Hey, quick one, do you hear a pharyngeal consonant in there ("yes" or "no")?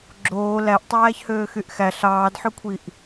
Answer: yes